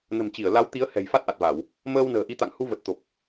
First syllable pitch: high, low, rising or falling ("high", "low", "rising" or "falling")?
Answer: low